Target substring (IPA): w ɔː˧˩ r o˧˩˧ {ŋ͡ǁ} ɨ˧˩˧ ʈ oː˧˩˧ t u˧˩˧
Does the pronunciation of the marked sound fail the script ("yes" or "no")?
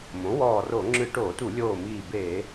no